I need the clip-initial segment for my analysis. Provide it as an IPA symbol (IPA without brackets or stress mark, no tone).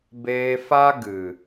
b